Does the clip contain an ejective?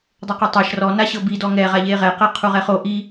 no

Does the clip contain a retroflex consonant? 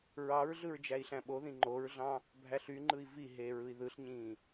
no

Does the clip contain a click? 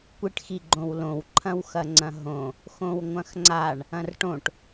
yes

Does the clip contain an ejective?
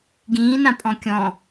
yes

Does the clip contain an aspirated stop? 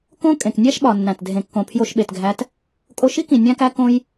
yes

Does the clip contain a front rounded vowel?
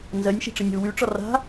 yes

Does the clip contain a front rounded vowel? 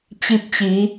no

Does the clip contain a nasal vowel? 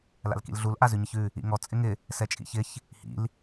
no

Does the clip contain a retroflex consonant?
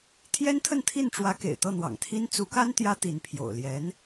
yes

